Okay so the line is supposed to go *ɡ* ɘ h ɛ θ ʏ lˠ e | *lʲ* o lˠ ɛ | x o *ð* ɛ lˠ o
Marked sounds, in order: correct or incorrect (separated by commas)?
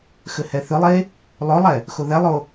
incorrect, incorrect, correct